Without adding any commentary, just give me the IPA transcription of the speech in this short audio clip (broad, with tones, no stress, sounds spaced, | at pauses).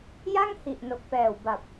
j a˥˩ ŋ h i˨˩ ʔ n o˨˩ k̚ p ɛː˨˩ w b a˨˩ p̚